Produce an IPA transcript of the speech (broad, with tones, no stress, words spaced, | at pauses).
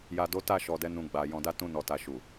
ja˨do˨˦ ta˦˨ ʃɔ˨dɛ˨˦ nũ˧ɡ͡ba˨ jɔ̃˨da˧ tũ˧nɔ˨ta˨ ʃu˨